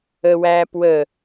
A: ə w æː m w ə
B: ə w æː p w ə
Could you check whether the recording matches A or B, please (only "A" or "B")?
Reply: B